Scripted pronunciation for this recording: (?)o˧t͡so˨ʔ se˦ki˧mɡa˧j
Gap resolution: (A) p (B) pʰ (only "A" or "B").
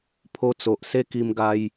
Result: B